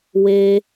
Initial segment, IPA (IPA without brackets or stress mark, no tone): w